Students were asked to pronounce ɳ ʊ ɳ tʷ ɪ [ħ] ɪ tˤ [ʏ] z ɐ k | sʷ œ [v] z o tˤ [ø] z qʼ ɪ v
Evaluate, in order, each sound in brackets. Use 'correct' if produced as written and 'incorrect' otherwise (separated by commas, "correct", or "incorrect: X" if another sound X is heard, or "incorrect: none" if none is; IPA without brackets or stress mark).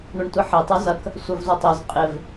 correct, incorrect: y, correct, incorrect: œ